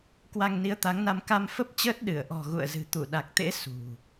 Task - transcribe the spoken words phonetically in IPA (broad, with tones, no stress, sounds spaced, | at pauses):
k w a˧ ŋ n i˨˦ ə̯ t̪ a˨˦ ŋ n a˧ m k a˧ m f ə˦˥ p̚ t͡ɕ əː˦˥ t̚ ɗ ɨ˧˩ ə̯ ʔ ɔ̤˨˩ ɣ ṵ˧˨ ə̯ z ɨ̤˨˩ t̪ u˧˩ ɗ a˨˩ k̚ t̪ ḛ˧˥ s ṳ˨˩